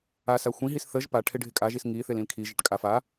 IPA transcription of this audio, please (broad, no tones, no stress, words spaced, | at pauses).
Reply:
asa xʷĩɦis θəʒ pa ʈʰɪɖʱɪkʼaʒis ŋiθɪl ĩlkʰiʒɪʈ kʼaf a